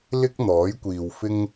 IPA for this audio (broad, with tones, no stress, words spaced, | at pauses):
lɪ˥k̚n̪ɔː˨˥jkʷiː˨wfɪ˥ŋ